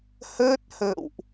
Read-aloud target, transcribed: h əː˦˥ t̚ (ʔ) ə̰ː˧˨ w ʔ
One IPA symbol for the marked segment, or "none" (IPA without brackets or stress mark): h